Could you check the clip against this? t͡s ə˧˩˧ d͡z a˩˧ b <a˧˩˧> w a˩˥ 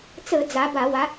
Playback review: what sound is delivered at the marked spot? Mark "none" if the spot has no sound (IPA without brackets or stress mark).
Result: a˧˩˧